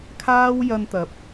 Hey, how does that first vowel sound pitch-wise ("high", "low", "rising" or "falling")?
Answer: high